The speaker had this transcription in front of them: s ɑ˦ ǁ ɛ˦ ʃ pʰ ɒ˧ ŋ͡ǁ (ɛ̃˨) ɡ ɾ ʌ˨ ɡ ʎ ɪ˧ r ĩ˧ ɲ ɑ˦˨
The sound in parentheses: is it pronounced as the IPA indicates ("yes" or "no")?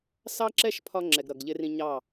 no